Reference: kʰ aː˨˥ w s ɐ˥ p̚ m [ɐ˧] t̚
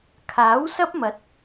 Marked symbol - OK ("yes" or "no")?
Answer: no